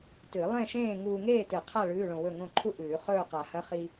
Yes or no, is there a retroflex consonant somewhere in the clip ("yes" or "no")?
yes